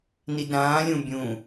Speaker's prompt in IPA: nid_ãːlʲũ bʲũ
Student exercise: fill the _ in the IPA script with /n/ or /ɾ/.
ɾ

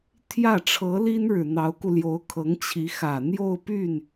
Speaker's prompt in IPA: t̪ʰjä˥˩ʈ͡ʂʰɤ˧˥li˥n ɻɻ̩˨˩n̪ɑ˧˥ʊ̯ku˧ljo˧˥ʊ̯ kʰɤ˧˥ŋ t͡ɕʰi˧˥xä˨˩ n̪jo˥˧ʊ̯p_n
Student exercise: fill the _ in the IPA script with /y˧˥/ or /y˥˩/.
y˥˩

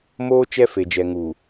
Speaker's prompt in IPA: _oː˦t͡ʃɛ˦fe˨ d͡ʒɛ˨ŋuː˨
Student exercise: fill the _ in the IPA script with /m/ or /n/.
m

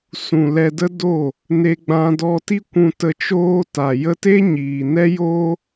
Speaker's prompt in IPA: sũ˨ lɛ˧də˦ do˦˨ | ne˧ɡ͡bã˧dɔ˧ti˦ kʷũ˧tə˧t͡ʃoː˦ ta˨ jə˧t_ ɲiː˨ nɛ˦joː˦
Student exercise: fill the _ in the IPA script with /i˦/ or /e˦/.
e˦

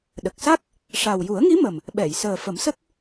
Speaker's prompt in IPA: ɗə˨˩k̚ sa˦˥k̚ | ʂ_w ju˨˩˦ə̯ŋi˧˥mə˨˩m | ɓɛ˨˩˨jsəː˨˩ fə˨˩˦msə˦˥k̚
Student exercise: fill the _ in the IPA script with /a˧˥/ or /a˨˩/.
a˨˩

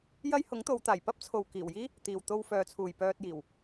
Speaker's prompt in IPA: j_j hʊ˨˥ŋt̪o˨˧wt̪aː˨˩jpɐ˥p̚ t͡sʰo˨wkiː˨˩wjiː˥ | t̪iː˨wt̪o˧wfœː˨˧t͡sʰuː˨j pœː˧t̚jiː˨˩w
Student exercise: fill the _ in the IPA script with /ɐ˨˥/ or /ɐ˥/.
ɐ˥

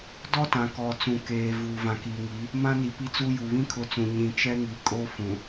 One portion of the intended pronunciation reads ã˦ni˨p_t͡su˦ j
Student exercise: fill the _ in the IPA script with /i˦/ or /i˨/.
i˦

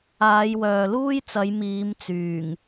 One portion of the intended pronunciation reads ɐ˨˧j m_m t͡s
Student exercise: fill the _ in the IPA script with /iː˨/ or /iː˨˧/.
iː˨˧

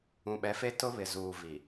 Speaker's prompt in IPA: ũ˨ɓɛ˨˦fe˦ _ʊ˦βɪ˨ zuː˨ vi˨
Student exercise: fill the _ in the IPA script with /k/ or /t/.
t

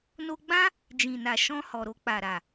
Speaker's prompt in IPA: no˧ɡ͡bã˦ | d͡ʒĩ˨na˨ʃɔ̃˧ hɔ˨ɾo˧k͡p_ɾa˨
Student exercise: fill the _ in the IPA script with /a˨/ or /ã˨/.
a˨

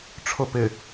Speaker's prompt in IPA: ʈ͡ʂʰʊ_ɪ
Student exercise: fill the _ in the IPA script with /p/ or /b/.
p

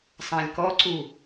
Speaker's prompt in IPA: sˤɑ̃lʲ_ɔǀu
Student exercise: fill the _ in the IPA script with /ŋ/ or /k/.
k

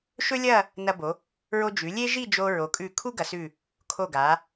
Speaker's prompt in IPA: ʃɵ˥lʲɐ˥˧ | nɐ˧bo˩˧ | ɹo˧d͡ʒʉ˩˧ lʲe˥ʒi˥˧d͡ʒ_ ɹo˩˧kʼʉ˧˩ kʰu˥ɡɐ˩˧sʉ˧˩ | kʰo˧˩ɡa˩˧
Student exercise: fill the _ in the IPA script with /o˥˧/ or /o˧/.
o˧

